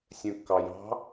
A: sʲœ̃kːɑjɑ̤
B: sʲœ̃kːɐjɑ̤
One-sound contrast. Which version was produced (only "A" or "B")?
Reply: A